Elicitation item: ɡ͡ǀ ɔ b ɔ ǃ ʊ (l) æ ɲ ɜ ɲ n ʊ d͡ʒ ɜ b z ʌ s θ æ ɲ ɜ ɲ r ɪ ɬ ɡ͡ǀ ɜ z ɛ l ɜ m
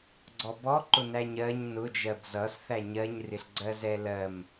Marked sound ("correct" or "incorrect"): incorrect